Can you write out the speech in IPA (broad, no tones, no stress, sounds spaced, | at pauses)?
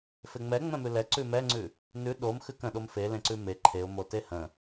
f e ŋ͡m ɛ ŋ͡m ɛ̃ m ʉ l ɛ ǀ ʉ m ɛ ŋ͡ǀ ʉ | n ʉ ɗ o m x ʉ k ə̃ ɗ o m f e l ẽ ǀ ʉ m e ǃʰ e ʊ̯ m o t e h ə̃